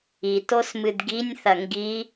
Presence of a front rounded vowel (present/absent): absent